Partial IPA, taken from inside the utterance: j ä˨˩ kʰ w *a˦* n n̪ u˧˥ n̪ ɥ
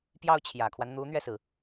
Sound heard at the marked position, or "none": a˦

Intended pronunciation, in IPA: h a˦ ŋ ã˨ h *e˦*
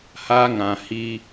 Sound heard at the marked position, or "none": i˦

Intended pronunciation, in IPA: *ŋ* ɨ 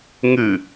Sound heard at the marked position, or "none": ŋ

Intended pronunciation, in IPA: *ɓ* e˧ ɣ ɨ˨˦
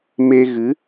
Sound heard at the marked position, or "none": m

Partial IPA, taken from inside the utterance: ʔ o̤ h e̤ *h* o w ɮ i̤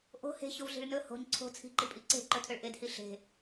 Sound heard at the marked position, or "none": ç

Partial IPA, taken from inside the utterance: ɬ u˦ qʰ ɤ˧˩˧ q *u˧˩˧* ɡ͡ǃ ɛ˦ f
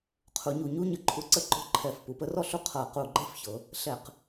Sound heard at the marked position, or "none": u˧˩˧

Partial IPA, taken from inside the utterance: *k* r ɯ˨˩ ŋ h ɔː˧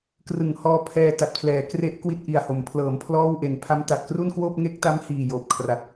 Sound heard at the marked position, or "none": k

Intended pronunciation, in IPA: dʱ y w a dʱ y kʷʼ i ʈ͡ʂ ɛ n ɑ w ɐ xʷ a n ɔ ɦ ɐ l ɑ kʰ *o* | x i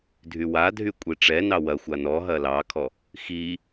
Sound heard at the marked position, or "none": ɔ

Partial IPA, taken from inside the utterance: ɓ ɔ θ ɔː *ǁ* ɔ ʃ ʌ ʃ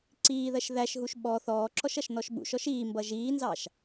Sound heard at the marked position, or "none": ǁ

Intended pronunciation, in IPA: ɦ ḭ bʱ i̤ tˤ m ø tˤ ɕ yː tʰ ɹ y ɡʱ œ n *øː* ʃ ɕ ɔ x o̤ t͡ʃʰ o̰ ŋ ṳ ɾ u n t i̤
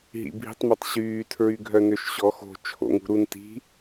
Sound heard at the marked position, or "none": ø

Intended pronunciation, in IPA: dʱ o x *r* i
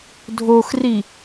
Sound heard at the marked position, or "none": r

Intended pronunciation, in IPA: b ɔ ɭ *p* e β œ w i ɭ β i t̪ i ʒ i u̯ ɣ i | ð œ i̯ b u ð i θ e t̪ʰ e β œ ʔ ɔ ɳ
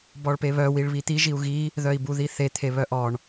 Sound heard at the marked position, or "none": p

